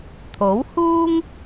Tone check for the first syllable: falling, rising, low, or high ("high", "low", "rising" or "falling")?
rising